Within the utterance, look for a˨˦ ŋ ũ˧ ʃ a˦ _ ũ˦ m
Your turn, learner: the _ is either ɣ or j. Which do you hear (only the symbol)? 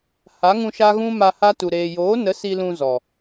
ɣ